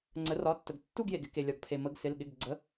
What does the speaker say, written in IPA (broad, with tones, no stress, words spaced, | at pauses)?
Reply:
ŋ͡ǀə˩˧rɒ˩˧˩tːə˩ɡ tːu˦˨ɡje˩ɡɪ˦˨ ke˩lʲɒ˩ɡ pʰe˩mə˩˧ɡsɪ˩˧˩l ɠɪ˩˧˩ɡɡ͡ǀə˩˧˩